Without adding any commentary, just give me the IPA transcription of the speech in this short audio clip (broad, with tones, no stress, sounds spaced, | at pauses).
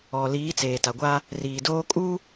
ɔ˨ l iː˨˦ t͡s eː˨ t a˨ ɡʷ a˦ | r iː˨ d oː˦ kʼ u˦